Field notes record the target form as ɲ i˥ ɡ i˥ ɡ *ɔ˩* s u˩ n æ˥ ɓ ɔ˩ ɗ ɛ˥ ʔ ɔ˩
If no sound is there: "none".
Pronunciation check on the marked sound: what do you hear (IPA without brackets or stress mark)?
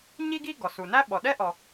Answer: ɔ˩